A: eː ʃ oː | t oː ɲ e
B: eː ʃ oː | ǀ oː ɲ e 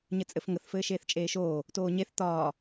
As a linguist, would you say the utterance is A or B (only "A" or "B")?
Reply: A